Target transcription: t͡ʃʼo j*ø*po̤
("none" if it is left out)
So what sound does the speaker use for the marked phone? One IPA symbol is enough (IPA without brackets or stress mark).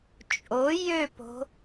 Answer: ø